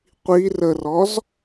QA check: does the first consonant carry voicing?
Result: no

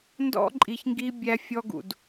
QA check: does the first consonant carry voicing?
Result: yes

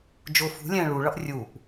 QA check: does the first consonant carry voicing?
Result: yes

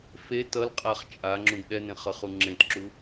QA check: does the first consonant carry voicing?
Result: no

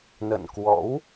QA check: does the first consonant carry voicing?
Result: yes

